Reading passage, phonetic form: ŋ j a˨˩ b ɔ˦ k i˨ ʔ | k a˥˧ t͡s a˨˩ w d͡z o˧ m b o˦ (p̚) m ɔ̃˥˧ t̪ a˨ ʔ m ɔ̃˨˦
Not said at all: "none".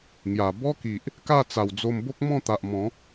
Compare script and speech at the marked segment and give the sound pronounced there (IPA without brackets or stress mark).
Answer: k̚